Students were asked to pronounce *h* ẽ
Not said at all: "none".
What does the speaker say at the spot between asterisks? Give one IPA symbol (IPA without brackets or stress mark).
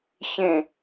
ç